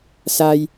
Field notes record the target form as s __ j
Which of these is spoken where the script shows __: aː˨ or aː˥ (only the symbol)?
aː˨